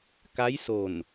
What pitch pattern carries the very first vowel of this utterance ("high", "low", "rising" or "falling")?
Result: rising